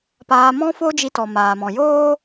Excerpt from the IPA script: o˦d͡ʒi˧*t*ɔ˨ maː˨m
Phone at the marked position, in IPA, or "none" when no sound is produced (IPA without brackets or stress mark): t